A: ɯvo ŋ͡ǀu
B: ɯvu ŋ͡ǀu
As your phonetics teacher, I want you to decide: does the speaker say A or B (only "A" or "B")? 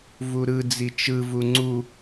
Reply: B